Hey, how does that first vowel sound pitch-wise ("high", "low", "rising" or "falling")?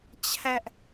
high